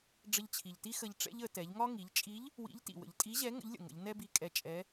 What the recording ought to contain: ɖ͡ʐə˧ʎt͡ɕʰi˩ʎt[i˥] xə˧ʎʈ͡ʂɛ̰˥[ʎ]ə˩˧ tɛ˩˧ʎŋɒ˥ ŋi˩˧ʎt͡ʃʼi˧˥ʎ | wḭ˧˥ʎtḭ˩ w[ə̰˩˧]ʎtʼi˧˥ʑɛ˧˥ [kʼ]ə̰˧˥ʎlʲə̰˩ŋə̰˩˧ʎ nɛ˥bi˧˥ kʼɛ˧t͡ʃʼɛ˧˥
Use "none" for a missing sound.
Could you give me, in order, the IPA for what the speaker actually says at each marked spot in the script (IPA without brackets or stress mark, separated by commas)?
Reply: i˥, ʎ, ə̰˩˧, ŋ